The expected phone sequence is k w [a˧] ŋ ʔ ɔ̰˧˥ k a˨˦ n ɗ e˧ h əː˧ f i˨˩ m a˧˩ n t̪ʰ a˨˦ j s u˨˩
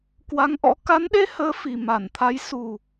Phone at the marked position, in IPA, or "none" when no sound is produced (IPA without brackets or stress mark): a˨˦